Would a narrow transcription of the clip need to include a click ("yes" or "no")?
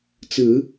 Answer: no